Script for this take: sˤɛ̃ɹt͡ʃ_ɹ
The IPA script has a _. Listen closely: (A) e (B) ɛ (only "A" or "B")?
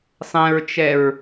B